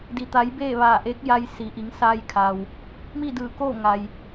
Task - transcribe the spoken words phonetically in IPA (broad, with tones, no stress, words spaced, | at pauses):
di˩t̪a˩˧j beː˥˨ʋaː˧˩ʔeː˧˥k̚ja˧j si˩˧ʔi˩˧ŋ saː˧jkʰa˩w | miː˥˨dɯː˧˩koː˥˨ ŋa˩j